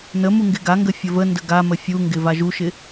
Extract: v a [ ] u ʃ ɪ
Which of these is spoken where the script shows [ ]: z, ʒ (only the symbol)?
ʒ